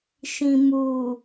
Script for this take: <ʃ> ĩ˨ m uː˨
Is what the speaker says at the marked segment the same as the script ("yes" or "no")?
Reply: yes